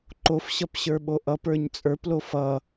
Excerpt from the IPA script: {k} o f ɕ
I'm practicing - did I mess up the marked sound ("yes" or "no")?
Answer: yes